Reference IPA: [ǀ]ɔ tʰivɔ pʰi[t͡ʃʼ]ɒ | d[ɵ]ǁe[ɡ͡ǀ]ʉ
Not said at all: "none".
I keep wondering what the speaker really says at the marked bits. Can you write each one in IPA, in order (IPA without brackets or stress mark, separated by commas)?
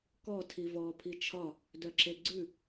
k, t͡ʃʰ, œ, ɡ͡ǀ